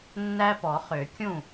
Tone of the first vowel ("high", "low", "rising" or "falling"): high